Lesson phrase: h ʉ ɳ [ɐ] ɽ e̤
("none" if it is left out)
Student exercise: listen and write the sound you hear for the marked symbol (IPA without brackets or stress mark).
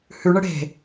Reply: ə